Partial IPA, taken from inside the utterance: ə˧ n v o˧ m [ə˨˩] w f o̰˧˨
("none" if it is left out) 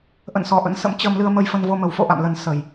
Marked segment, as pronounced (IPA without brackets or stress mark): ə˨˩